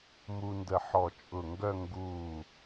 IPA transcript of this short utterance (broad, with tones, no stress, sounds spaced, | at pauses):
m u˧ n d ə˧˩ ħ ɔ˧˩ t͡ʃʼ ʊ˧˩ ŋ ɡ œ˥˧ ŋ ɡ uː˧˩